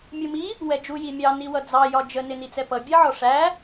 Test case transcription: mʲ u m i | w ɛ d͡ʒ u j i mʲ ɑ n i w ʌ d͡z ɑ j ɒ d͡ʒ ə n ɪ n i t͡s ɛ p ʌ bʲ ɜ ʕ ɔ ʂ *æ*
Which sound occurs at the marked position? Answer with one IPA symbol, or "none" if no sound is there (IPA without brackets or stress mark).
æ